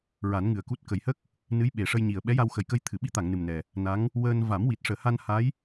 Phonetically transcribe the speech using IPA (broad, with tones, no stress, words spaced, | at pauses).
ɹa˨˩˦nŋɨ˨˩ə̯ku˦˥t̚ kə˨˩jhə˦˥k̚ | nɨ˧˥jɓe˨˩ʂə˧jɲi˨˩ə̯ ɓɛ˧˥ja˧wxə˨˩jkə˧j t̪ʰɨ˨˩˨ɓi˧˥t̪a˨˩˨ŋ nɨ˨˩mnɛ˨˩ | na˧˥ŋ | wəː˧n va˨˩˦mwi˨˩t̚ ʂəː˨˩˨ha˧n ha˧˥j